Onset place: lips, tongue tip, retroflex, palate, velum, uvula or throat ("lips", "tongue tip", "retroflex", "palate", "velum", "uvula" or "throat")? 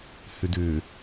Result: throat